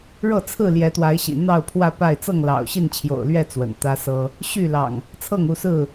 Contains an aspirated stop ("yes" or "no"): yes